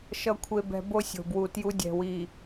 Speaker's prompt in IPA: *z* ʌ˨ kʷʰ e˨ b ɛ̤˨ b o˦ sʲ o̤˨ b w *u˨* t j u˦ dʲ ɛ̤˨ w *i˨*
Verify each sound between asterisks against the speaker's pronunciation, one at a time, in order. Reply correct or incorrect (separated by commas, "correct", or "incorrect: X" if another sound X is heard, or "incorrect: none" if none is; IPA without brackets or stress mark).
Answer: incorrect: ʃ, correct, correct